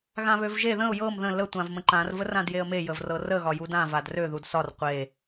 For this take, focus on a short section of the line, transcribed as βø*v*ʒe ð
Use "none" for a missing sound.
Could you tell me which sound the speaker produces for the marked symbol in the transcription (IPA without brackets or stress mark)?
v